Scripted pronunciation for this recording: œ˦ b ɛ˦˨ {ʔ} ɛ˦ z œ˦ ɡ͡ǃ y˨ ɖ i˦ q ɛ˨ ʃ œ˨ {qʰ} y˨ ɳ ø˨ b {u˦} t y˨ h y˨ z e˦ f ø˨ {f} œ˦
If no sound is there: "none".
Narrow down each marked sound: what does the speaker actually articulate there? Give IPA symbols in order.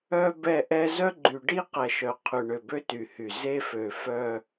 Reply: ʔ, qʰ, ø˦, f

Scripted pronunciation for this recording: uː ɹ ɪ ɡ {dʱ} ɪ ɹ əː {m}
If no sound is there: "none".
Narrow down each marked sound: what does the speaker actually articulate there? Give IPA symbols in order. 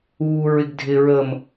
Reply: dʱ, m

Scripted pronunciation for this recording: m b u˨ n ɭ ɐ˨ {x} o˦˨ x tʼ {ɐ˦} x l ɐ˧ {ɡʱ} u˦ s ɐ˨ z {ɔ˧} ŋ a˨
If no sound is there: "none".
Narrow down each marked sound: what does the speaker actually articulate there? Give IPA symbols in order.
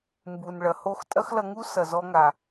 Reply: h, ɐ˦, ŋ, ɔ˧

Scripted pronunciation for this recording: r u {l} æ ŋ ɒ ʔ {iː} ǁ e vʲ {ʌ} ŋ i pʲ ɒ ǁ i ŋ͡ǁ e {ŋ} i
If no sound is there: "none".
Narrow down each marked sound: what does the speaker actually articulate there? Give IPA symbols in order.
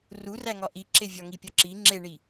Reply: r, i, ɒ, ɳ

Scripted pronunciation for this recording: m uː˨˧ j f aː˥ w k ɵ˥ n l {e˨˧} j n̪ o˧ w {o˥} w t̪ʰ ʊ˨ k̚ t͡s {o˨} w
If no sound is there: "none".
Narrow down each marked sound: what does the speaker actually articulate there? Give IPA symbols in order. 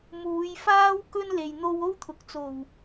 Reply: e˨, o˥, o˨˩

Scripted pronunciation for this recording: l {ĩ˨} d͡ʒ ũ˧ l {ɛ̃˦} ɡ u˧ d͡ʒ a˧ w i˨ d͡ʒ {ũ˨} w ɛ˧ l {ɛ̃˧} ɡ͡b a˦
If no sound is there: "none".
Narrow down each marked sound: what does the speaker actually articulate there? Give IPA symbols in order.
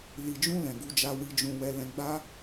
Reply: i˨, ɛ̃˨, ũ˨, ɛ̃˧

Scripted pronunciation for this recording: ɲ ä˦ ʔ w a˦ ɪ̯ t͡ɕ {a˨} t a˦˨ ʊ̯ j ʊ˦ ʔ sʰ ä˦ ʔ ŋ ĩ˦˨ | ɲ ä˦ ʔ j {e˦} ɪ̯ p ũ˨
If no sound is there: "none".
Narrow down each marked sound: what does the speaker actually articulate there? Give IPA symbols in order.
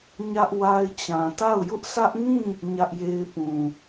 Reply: ã˨, e˦

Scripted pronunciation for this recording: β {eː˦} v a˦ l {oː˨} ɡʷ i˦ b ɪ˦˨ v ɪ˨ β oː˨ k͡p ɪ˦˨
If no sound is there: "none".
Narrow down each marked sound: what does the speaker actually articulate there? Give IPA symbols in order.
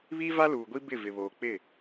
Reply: iː˦, uː˨

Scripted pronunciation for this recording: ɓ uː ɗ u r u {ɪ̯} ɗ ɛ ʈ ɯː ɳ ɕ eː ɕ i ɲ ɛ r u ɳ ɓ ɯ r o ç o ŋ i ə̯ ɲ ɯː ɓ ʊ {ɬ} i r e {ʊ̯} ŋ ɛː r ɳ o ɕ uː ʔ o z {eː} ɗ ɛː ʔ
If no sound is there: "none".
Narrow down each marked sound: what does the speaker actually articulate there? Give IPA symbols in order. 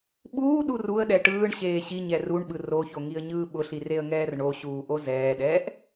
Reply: ə̯, ɬ, ə̯, ɛː

